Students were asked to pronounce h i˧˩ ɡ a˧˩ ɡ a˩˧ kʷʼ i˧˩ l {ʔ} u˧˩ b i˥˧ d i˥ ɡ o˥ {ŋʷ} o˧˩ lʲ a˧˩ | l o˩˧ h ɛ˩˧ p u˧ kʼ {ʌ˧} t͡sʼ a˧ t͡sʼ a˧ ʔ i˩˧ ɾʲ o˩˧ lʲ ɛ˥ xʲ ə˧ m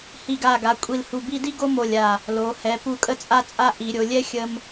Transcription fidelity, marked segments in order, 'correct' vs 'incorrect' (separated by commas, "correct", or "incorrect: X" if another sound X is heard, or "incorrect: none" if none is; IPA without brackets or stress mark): incorrect: h, incorrect: m, incorrect: ə˧